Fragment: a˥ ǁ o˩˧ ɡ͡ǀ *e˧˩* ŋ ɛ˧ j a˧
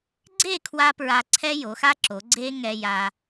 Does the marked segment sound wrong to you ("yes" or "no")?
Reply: yes